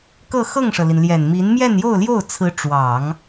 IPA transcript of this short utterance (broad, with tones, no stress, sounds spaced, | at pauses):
k ɤ˥˧ x ɤ˥˩ ŋ ʂ ɤ˩ l i˩ n l j ɛ˨˩ n m i˧˥ n m j ɛ˥˧ n j o˥˧ ʊ̯ l j o˥˩ ʊ̯ t͡sʰ ɹ̩˧˥ ʈ͡ʂ w ɑ˨˩˦ ŋ